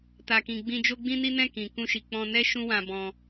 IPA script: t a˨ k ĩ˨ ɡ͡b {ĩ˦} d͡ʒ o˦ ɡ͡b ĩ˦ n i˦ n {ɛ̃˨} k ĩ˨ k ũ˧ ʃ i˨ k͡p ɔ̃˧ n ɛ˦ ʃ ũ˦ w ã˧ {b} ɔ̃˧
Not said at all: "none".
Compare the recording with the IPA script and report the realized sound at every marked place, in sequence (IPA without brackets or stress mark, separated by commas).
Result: ĩ˧, ɛ̃˦˨, b